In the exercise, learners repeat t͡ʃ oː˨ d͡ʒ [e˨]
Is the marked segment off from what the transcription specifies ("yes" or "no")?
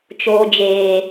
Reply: yes